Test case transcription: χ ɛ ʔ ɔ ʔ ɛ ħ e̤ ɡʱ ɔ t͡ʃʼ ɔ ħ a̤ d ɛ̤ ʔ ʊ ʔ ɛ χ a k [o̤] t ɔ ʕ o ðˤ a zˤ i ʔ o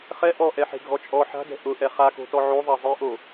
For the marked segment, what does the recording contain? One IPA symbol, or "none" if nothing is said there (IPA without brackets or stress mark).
o̤